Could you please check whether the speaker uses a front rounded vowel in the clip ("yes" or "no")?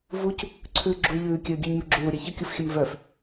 yes